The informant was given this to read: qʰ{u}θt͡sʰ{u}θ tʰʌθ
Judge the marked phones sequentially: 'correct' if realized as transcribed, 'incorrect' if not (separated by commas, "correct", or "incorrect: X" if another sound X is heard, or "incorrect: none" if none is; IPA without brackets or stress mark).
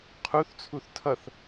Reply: correct, correct